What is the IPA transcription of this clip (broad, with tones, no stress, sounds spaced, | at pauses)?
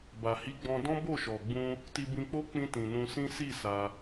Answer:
b a˨ h i˨˦ ɡ͡b ɔ̃˧ d ɔ̃˦ b o˦˨ ʃ ɔ˨ ɡ͡b ũ˧ | t i˧ b ĩ˧ k͡p o˦ k͡p ĩ˧ t ĩ˨ n ũ˧ s ĩ˦ s i˦˨ s a˧